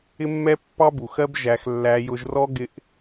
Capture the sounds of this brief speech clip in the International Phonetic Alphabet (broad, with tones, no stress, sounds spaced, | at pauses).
ɪ˦ mː ɛ˦ pː ɑ˦ b u˨ x ɜ˦ b ʒ æ˧ x lː æ˧ j ʊ˧ ʒ r ɔ˦ ɡ ɪ˦ ʔ